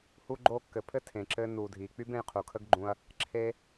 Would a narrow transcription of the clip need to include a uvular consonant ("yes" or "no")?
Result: yes